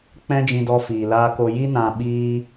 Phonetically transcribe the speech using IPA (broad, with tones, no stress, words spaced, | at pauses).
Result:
k͡pɛ̃˦d͡ʒĩ˧dɔ˧ fiː˨laː˧ko˧ ji˦nã˧ ɓiː˦